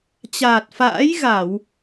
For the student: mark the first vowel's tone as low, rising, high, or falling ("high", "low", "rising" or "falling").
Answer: low